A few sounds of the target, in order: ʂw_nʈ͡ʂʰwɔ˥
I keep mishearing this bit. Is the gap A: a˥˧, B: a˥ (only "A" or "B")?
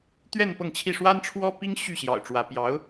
B